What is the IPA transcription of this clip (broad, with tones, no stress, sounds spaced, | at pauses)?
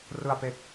r ɯ˨˩ a̯ p e˨˩ k̚